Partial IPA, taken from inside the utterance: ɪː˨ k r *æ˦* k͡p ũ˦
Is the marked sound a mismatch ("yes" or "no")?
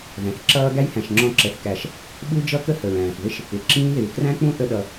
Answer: yes